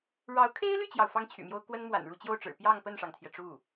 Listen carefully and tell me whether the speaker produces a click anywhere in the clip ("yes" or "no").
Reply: no